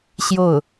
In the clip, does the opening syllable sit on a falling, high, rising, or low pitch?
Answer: falling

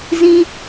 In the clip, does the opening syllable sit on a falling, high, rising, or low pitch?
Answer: high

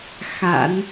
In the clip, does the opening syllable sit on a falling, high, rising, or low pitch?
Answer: low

